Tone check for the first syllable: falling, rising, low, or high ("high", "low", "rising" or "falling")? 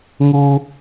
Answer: high